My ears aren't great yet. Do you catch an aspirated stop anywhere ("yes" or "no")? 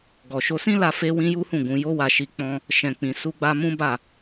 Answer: no